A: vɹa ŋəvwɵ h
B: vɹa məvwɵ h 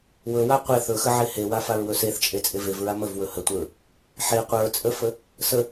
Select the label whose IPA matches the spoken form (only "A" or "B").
B